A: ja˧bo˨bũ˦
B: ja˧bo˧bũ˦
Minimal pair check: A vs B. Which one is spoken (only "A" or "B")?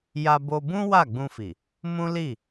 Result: B